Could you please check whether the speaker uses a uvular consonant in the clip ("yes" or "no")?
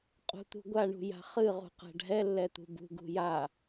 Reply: yes